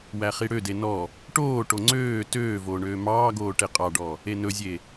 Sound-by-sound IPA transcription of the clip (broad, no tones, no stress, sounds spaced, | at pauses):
w æ χ i ɽ ø d e n ɔ | ʈ oː ʈ o ŋ͡ǀ øː t øː v oː ɳ øː m ɑː ɡ oː ʈ e qʼ ɑ ɖ ɔ | e n ɵ zʲ e